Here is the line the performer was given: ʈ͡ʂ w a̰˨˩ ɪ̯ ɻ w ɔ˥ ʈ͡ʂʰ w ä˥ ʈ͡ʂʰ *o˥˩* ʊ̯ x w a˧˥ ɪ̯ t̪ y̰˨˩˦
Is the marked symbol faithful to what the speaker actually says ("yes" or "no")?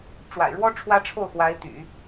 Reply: yes